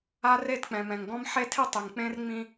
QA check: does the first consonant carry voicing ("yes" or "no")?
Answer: yes